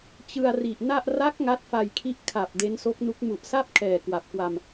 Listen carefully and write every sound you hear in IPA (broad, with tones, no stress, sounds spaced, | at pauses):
t͡ɕ ɯ˧ a̯ r i˨˩ ʔ n a˥˩ ʔ r a˦˥ k̚ ŋ a˦˥ t̚ f a˧ j kʰ i˦˥ ʔ kʰ a˨˩ p̚ d e˦˥ n s o˦˥ k̚ n u˦˥ k̚ m u˨˩ ʔ s a˥˩ p̚ kʰ ɛː˨˩ k w a˨˩ p̚ k w a˧ m